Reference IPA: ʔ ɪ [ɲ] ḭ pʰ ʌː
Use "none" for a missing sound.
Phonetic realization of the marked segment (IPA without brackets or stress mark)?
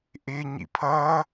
ɲ